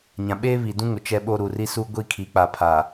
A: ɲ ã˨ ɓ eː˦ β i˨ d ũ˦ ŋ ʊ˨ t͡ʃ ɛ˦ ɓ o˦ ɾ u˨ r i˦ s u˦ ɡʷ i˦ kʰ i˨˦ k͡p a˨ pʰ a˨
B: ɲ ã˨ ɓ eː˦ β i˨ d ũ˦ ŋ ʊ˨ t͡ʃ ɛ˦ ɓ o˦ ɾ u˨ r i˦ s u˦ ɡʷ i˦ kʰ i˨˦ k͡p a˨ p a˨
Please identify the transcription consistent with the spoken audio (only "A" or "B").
A